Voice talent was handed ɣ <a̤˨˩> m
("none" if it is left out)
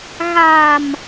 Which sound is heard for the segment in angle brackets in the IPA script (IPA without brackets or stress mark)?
a̤˨˩